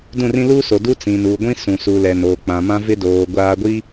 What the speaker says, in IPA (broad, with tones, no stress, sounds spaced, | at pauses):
d ũ˦˨ r ĩ˦ l uː˦ s o˨ d u˦ t͡s ĩ˨ n u˨ ɡʷ ĩ˦ s ũ˨ s u˨ l ɛ˨ n oː˨ k͡p ã˨ m ã˦ v ɪ˦ d oː˨ ɡʷ aː˦ ɡʷ i˦